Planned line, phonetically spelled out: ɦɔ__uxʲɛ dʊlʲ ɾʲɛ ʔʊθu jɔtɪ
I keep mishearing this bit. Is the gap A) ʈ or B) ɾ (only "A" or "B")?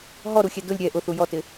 B